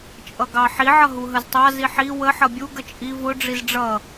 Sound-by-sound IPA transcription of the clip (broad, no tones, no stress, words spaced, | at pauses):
t͡ʃʼʌɡɑħi ʕʌɦuɦəztˤɑ ziħi wə ħʌbʲu ɡət͡ʃʼi vʊ ɖ͡ʐizɖ͡ʐʌ